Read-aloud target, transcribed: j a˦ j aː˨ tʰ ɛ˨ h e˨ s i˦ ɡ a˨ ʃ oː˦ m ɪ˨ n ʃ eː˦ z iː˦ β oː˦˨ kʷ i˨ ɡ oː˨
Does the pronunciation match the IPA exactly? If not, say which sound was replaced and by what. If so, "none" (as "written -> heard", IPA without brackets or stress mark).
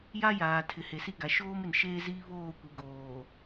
ɛ˨ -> ɪ˨